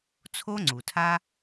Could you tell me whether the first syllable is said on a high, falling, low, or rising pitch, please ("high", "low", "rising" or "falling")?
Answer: high